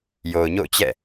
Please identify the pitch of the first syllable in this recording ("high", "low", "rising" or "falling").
low